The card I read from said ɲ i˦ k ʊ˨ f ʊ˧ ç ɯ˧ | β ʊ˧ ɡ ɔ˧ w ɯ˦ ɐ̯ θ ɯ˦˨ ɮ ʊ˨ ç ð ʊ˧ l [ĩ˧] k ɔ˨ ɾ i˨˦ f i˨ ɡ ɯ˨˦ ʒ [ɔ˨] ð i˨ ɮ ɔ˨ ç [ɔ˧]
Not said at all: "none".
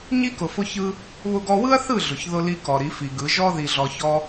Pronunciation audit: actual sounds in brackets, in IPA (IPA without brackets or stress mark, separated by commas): i˧, ɔ˦, ɔ˧